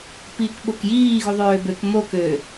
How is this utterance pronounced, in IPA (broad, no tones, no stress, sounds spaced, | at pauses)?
p iː k ɓ o k j iː ɣ u ðˤ øː b ø k m o k ø